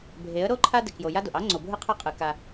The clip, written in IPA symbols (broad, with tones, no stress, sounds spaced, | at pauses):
bʱ e˨˦ ə̯ ɾ o˦ ǃʰ a˦ d ɪ˨ k j o˨ j a˦ d o˨ ʔ ɑ˦ ŋ͡ǀ o˨ bʱ ɯ˦ qʰ a˦ qʼ ɯ˨ k a˦